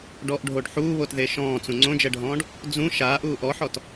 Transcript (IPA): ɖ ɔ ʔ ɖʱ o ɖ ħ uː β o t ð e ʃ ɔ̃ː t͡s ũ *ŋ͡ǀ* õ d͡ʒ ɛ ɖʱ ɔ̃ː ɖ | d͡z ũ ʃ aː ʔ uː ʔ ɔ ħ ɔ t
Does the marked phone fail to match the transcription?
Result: no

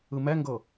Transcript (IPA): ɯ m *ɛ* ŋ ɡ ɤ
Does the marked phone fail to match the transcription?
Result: no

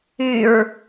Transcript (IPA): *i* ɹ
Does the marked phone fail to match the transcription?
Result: yes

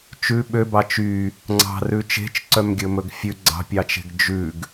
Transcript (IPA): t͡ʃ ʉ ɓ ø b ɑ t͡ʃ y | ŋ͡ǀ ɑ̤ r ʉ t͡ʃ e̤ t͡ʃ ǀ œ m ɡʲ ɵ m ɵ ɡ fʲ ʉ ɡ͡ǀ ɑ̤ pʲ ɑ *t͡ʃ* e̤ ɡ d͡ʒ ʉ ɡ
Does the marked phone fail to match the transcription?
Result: no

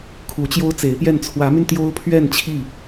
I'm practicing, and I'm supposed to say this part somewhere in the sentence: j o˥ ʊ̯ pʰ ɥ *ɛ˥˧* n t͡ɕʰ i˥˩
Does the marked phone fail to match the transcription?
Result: no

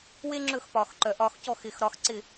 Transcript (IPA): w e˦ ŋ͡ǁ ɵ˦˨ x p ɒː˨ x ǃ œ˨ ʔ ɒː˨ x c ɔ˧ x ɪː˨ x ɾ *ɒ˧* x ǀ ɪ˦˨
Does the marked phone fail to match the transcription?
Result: no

